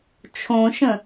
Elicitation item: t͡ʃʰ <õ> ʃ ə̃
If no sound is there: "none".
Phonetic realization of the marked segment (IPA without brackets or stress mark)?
õ